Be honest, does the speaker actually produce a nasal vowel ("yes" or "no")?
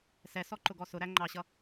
no